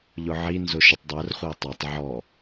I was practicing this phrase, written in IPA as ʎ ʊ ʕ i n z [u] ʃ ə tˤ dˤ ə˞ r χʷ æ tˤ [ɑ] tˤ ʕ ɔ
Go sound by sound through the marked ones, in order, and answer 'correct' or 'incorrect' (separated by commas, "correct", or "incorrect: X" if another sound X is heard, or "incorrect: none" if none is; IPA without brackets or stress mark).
incorrect: ʊ, correct